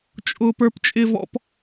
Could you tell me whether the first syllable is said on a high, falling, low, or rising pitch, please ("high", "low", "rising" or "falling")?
high